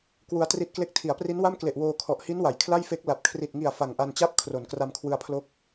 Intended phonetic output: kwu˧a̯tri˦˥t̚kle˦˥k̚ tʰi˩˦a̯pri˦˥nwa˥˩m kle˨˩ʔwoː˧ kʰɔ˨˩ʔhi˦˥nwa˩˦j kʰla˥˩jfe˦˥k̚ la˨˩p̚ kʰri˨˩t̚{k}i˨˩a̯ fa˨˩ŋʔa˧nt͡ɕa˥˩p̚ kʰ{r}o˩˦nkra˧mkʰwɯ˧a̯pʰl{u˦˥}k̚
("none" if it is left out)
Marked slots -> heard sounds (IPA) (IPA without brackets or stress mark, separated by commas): ŋ, r, o˦˥